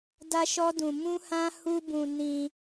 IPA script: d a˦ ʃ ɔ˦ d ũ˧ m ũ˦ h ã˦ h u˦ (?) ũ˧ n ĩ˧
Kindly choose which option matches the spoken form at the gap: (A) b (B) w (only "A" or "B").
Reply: A